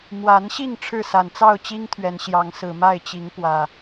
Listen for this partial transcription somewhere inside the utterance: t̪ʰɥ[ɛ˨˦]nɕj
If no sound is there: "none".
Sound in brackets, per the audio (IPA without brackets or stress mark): ɛ˨˦